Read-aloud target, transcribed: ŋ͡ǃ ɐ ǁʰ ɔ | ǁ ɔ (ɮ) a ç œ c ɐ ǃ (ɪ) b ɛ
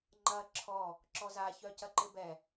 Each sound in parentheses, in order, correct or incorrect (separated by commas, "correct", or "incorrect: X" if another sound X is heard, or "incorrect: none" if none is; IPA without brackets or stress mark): incorrect: z, correct